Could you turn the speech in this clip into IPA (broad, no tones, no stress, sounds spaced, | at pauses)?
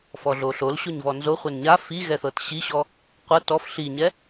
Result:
f ɔ ɮ o ɬ o l ɕ o ɲ v ɔ n z o χʷ ɛ n ɲ a f i ɣ ɛ θ ɤ t ɕ i ɕ ɔ | qʷ ɤ t ɔ f ɬ i ɲ ɛ